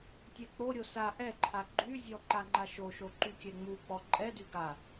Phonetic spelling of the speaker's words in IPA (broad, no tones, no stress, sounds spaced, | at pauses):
tʲ ɛ k͡p o ɾʲ o s a ʔ ɛ ǃʰ a ɡ͡ǃ y zʲ ɔ ǃ a ŋ͡ǃ a ʃ o ʃ o ǃ y kʲ ɛ ŋ͡m u k͡p ɔ ǃʼ ɛ d y ɡ a